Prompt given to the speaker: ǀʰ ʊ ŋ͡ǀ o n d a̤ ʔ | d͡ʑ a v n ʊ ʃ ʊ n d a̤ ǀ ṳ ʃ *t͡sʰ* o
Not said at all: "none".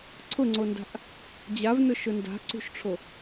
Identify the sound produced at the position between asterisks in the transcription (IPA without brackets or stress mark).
ʈ͡ʂʰ